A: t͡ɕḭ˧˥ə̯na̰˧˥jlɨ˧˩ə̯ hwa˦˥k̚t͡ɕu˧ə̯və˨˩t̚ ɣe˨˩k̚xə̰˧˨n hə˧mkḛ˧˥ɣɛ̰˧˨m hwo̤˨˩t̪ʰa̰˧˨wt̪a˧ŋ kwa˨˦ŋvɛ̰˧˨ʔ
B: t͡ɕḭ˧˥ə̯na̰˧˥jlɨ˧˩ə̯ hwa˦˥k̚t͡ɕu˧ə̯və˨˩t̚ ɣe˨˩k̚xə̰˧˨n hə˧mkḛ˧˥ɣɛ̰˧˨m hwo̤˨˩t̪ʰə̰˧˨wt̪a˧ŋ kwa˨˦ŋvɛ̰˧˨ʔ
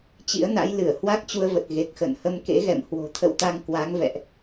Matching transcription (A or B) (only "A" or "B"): B